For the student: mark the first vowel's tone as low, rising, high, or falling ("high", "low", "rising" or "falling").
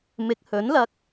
rising